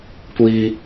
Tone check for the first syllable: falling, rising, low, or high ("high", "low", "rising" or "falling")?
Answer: high